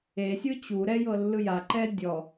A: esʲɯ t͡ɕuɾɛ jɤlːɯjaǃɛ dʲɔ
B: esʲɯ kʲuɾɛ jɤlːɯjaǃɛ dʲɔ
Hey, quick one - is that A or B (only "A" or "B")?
A